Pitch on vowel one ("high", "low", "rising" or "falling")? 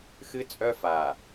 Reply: high